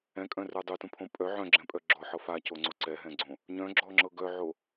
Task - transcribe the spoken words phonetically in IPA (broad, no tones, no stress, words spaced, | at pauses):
ɛ̃kʼœ̃rə˞ dˤutũpʰõ pʼœ ʕœ̃ɡ͡ǁɛ̃pʼœ ɡ͡ǁɔħɤ facoŋ͡ǀo ǀɛɦɛ̃ɡ͡ǀõ | ɲœ̃ɡ͡ǁɔŋ͡ǁɤ ɡœʕo